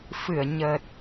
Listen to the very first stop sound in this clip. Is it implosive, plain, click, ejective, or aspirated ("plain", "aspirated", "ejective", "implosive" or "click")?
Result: plain